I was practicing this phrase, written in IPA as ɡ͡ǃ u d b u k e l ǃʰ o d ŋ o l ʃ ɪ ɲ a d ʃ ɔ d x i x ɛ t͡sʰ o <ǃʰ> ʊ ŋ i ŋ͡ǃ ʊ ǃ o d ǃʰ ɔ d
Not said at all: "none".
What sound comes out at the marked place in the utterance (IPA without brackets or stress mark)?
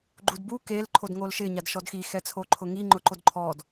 ǃʰ